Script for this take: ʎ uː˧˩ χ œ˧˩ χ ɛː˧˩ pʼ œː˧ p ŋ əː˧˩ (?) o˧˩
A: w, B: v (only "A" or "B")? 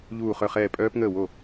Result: A